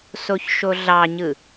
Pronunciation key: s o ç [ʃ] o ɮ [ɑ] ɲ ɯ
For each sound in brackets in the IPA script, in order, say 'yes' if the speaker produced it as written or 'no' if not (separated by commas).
yes, yes